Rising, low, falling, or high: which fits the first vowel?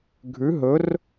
rising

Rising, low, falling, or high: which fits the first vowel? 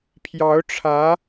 rising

